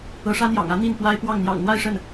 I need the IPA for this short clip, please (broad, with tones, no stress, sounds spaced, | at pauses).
ɤ˧˥ ʂ ä˥ n̪ j ɑ̰˨˩ ŋ ä˧˥ n̪ i˥˩ n p w a˥ ɪ̯ p w ɑ˥˩ ŋ n̪ j ɑ̰˨˩ ŋ n̪ w a˥˧ ɪ̯ ʂ ə˥˩ n